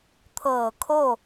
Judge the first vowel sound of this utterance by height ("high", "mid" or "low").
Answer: mid